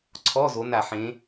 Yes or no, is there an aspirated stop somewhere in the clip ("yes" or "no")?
yes